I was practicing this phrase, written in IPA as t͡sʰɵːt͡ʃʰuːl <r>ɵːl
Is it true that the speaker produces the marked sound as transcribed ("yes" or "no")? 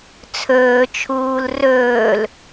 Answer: yes